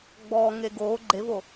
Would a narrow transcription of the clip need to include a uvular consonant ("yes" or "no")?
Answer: no